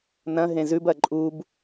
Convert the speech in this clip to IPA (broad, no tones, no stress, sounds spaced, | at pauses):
n ɐ̃ ɦ ẽ z ʉ b ɐ ǃʼ u b